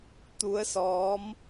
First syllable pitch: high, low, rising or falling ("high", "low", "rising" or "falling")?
rising